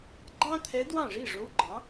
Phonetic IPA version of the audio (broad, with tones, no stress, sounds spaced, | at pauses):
ɡ͡ǃ ɑ̃˥ t̪ʰ ɛ˧˥ d w ɑ̃˥˨ ʐ i˥˨ ʐ o˧˥ w ɡ͡ǃ ɑ̃˩˥